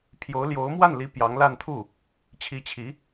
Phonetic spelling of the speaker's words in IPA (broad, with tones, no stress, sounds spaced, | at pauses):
pʰ j o˧˥ ʊ̯ l j o˧˥ ʊ̯ m w a˥˩ n l i˧˥ p j ɑ˧˥ ŋ l a˥˧ n t̪ʰ u˥˩ | t͡ɕʰ i˧˥ t͡ɕʰ i˧˥